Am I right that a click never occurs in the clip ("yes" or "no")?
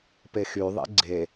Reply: no